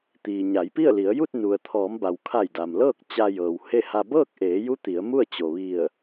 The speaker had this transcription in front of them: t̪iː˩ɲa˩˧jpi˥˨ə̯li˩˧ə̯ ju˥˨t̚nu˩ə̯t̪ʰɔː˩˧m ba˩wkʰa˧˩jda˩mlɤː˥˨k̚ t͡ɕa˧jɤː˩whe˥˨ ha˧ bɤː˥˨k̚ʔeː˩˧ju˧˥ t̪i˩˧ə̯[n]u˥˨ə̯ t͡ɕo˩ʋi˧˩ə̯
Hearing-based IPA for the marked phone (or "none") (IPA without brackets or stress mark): m